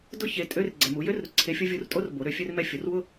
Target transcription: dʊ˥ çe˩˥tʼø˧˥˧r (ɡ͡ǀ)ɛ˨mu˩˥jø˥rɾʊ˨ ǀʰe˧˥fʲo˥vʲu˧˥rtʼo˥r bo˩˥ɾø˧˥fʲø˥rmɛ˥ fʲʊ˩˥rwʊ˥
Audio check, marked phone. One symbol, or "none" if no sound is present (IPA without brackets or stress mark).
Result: ɡ͡ǀ